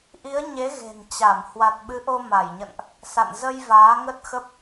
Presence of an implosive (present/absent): present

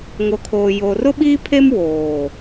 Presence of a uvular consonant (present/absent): absent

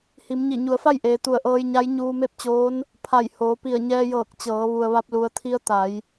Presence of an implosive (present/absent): absent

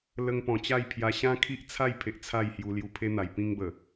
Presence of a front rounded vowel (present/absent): absent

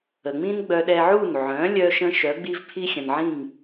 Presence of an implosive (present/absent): present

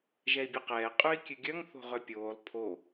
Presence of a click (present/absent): absent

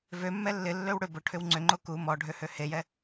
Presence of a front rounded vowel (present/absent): present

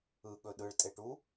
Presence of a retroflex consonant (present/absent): present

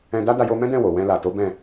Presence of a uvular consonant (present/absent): absent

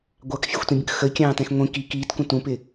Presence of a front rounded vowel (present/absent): absent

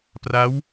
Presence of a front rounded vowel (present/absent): absent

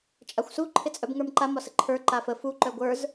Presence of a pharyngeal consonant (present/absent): absent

